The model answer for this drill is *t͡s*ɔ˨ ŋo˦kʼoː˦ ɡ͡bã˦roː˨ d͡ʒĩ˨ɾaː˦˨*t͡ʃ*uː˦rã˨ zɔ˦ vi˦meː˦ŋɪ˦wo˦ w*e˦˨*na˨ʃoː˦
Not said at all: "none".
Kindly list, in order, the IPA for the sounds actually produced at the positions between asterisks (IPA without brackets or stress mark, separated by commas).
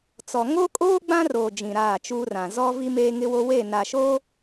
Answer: t͡s, t͡ʃ, e˦˨